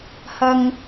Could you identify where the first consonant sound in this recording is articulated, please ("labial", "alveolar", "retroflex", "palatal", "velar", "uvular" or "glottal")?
glottal